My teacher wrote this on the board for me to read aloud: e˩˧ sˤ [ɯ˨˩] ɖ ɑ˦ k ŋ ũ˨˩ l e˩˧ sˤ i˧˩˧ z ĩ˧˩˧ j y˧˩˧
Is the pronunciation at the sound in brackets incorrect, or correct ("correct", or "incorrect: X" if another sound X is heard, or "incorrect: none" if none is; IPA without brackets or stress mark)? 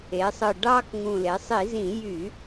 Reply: correct